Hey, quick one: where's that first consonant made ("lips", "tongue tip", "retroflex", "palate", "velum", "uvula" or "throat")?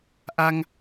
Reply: throat